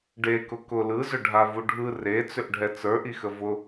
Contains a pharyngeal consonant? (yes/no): no